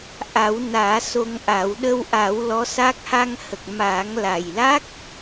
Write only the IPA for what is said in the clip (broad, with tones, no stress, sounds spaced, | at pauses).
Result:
ʔ a˨˩˦ w n aː˨˩˦ s o˧ ŋ ʔ a˨˩˦ w ɗ ə˧ w ʔ a˨˩˦ w l ɔ˧˥ s a˦˥ k̚ h a˧ ŋ h ə˨˩ k̚ m aː˨˩˦ ŋ l a˨˩ j l a˦˥ k̚